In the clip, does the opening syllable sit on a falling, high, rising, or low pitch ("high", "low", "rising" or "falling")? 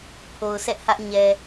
low